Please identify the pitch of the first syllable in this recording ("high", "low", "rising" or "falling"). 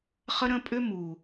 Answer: high